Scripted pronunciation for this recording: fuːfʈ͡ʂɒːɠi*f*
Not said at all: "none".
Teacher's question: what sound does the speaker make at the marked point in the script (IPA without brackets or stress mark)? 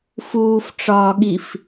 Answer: f